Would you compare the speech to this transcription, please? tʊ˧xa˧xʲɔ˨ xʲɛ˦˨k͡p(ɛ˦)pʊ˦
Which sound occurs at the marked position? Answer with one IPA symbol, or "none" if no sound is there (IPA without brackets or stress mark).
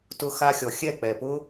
ɛ˨